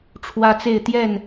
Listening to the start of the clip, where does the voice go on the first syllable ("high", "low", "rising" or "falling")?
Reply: high